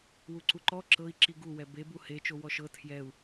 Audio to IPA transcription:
wuǀuǃɔ ǁɤi̯ ǁiɡu wɛbe buhe t͡ʃowɔʃɤ tʰjɛu̯

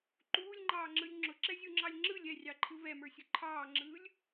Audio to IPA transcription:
ǃuːlʲŋ͡ǃɑːŋ͡ǁɯlʲ ŋ͡ǁʊǁɛzʲuŋ͡ǁɑlʲ ŋ͡ǁɯlʲ ɛrʲɑǃʰɯ vɛmə˞sʲʊ ǃʰɑːŋ͡ǁɯːlʲ

